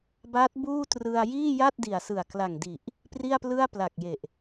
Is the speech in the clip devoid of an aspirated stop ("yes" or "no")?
yes